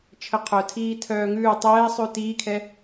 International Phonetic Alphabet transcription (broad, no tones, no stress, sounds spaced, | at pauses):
t͡ʃʰ ə qʰ œ tʰ iː tʰ œː ŋ ʉː tˤ ɛː sˤ ʉ t iː kʰ ɛ